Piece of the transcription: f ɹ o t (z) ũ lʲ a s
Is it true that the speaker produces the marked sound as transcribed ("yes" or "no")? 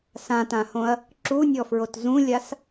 yes